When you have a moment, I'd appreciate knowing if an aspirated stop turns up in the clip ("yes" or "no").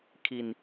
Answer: yes